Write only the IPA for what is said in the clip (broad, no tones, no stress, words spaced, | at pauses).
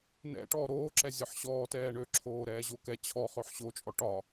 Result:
nɛ̰ʈɔː ɾoːǁɛ zʲɒħɕɔːtɛː ɳøǁʰoː ɾɛːʑokɛ t͡ɕʰɔ χøħɕot͡ʃʼɔ ʈɒ